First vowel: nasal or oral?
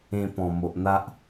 nasal